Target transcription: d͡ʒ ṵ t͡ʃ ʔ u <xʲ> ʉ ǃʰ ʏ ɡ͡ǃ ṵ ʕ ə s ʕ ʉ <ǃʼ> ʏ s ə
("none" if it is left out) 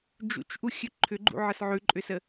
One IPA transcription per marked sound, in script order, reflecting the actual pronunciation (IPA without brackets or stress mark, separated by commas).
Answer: xʲ, ǃʼ